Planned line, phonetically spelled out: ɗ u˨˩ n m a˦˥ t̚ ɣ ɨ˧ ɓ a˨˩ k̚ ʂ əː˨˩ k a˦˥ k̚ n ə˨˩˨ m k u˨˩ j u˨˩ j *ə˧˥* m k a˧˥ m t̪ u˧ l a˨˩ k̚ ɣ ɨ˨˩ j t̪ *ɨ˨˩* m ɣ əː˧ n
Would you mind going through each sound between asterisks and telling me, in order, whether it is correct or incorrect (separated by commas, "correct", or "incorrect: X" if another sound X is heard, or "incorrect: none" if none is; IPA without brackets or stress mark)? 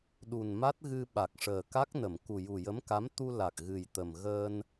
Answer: correct, incorrect: ə˨˩